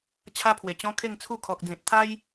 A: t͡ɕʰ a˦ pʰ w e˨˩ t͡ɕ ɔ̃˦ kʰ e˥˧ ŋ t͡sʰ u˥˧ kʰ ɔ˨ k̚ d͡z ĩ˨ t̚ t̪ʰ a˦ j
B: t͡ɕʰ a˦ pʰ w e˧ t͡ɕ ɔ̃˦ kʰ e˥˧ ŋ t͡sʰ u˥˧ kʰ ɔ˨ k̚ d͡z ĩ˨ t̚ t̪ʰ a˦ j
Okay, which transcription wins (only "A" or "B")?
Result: A